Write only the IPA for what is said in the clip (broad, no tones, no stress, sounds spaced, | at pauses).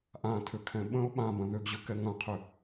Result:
ʔ ã tʰ ʏ kʰ ɛ̃ ɓ ə̃ ʊ̯ ɓ ã b ɐ̃ ð ʏ ɡ ʑ ʏ k ɛ ŋ ɐ̃ qʰ ʏ